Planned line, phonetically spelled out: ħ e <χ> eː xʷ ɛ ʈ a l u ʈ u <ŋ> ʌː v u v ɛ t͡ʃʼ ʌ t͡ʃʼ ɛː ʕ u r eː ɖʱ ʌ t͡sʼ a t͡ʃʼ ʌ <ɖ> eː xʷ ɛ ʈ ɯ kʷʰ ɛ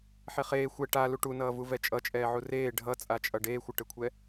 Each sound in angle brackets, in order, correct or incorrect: correct, incorrect: n, correct

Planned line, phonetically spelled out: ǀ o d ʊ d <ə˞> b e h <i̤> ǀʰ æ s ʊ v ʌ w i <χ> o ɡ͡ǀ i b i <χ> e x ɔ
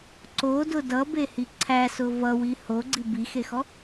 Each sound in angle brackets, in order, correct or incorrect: incorrect: ʌ, incorrect: i, incorrect: h, incorrect: x

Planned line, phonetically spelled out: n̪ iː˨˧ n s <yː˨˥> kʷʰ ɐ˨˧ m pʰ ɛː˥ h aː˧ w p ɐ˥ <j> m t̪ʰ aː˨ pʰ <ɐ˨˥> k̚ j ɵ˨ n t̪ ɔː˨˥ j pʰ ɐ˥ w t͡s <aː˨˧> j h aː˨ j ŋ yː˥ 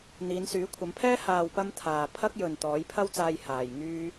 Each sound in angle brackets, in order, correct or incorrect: correct, incorrect: none, incorrect: ɐ˥, incorrect: aː˧

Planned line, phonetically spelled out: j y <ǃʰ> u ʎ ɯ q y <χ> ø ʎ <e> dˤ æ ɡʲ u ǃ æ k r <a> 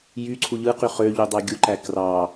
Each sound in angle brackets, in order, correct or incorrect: incorrect: ǀʰ, correct, incorrect: y, incorrect: ɑ

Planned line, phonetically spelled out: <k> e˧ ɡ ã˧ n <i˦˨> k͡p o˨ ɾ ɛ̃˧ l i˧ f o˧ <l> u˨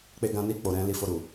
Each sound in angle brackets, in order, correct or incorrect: incorrect: k͡p, incorrect: i˧, incorrect: ɾ

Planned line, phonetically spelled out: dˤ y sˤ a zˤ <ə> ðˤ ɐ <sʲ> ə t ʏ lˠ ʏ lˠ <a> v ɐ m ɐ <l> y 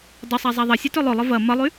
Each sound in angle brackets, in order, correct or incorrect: incorrect: a, correct, incorrect: ə, incorrect: lˠ

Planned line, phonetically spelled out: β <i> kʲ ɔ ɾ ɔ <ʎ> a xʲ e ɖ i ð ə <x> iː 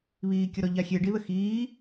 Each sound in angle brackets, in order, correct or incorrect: incorrect: iː, correct, correct

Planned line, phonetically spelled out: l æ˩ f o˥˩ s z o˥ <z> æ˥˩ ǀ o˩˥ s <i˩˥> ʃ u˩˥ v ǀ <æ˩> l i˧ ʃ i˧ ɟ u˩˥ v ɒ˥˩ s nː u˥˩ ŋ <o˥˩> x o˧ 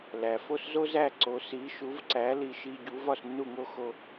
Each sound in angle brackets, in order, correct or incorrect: correct, correct, incorrect: æ˩˥, incorrect: o˥

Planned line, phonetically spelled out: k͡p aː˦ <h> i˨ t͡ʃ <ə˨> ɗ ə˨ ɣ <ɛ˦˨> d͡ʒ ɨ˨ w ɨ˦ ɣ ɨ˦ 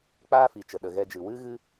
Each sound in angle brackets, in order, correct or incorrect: incorrect: f, correct, incorrect: ɛ˧

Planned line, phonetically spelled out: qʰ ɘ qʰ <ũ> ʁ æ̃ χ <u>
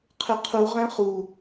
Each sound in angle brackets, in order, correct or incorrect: incorrect: u, correct

